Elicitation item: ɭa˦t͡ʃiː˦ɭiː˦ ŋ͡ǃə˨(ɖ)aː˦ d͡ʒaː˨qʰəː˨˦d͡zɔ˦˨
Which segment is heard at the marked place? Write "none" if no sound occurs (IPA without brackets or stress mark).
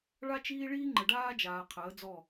ɖ